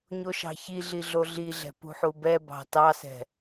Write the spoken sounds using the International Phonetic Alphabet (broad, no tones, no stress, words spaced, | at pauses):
ɲoʃɑ̤çiɮi ɮoɮiɮɛ̤ pṳħubɛbɑ̤ tɑsɛ̤